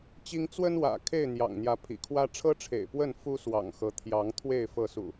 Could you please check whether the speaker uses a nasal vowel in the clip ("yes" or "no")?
no